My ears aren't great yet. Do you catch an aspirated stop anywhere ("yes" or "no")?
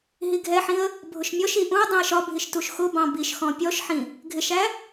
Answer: no